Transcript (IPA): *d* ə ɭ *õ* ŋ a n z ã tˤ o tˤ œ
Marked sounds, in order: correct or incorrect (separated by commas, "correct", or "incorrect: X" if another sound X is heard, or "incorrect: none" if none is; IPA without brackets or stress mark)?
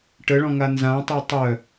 incorrect: ʈ, incorrect: ɔ̃